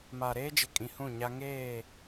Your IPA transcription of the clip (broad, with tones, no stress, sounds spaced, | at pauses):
m a˨ ɾ eː˦ d͡ʒ ɪ˨ kʼ ĩ˨ h ũ˦˨ ɲ a˦ ŋ eː˦˨